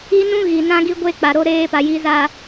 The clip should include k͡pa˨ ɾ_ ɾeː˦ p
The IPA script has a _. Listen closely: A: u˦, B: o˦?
B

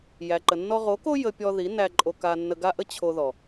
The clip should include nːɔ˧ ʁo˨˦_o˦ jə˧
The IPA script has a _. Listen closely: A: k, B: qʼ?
A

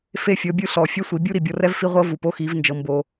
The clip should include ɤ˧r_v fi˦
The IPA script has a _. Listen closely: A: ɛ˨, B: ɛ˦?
B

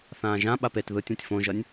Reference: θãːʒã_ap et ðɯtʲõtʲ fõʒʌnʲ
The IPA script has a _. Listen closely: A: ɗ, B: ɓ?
B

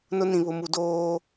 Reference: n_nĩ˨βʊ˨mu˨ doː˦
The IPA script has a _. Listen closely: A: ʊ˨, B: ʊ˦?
B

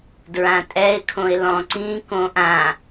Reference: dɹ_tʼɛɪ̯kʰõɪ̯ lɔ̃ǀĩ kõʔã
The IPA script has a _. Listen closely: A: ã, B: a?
A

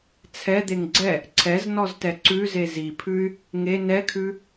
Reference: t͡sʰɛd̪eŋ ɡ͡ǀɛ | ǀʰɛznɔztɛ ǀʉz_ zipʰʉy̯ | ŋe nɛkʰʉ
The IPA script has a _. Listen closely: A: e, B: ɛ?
A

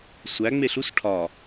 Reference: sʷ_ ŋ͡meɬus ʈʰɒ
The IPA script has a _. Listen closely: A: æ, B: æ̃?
A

